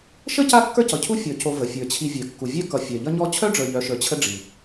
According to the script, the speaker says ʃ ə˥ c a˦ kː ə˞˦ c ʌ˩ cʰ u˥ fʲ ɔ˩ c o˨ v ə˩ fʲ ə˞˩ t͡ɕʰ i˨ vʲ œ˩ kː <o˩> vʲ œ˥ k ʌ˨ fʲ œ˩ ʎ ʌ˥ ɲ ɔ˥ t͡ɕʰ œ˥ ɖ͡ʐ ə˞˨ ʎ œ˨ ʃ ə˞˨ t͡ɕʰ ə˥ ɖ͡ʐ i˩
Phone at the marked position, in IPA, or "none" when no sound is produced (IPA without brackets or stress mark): u˩